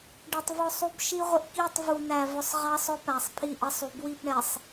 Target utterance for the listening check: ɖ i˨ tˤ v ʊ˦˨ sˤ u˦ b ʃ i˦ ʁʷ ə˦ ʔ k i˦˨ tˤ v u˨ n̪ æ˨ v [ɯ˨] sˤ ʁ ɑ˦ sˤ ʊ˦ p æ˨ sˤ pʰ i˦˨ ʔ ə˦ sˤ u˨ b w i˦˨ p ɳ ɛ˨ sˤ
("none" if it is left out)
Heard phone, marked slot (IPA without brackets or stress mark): ʊ˨